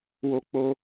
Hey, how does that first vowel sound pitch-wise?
high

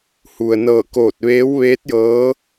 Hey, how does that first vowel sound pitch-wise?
low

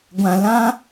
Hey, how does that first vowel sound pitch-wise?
low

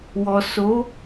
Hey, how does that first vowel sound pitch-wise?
low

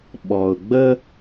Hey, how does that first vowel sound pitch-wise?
low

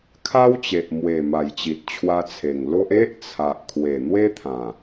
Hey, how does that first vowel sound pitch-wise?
high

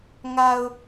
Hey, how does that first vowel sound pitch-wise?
low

